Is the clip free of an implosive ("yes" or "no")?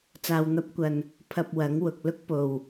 yes